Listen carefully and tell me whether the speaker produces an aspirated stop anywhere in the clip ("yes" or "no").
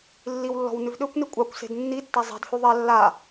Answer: no